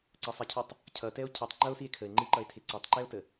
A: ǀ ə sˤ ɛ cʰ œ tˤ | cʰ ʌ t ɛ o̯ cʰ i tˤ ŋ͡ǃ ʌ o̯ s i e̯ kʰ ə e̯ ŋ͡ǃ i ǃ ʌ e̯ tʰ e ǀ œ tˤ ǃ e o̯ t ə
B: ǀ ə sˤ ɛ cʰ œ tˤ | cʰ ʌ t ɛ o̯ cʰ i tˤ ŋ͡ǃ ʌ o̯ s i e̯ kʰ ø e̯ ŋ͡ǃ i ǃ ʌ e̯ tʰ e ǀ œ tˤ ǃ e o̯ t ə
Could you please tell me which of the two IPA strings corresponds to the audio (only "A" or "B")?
A